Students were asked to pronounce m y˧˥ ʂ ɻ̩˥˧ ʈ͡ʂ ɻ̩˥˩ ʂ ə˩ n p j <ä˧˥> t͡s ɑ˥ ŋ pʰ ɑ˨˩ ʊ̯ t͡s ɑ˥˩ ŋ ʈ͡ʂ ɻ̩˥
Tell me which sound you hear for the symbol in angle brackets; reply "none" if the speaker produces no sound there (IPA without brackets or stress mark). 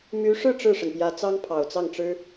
ä˧˥